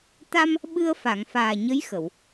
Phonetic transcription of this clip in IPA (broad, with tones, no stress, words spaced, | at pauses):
t̪a˧m | ɓɨ˧ə̯fa˨˩˨ŋfaː˨˩ɲə˧˥j xə˨˩˨w